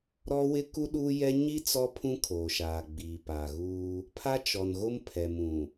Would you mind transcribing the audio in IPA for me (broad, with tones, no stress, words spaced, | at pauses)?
ɾɔ˦wɪ˦ku˦ ɗu˦jɛ˦ ɲi˦ t͡sɔ˦pʰũ˦ kʰoː˨ʃaː˨ ɡ͡biː˨paː˨ɣuː˦ | pʰa˦t͡ʃɔ˨nɣo˦m pʰɛ˨mũ˨